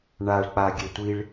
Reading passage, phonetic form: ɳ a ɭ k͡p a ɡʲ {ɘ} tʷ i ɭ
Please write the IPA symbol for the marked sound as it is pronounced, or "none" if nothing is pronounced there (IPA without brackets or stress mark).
ɛ